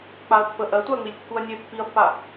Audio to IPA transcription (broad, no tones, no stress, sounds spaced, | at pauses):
k͡p a ɐ̯ pː ə ʔ ɜ tʷ a ɐ̯ ŋ͡m i lʲ kː u ɐ̯ nʲ e pː i ɐ̯ pː a